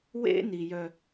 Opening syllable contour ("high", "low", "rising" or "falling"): high